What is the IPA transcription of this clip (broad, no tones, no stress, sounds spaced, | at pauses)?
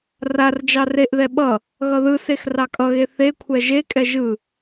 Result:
r a r d͡ʒ ɑ r e ʔ ð ɛ ɓ ʌ | ɣ ʌ ð ɯ s e x r ɑ kʼ ʌ ɣ e θ e kʷʰ ɛ ʒ e kʼ ɛ ʒ ɯ